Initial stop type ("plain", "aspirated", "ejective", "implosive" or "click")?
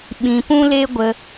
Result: implosive